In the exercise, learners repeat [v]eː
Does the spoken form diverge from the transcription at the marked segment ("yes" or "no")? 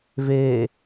no